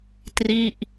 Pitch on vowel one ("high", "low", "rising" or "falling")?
falling